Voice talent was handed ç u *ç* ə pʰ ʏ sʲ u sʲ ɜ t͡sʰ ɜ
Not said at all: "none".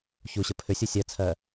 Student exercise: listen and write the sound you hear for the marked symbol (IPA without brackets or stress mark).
ɕ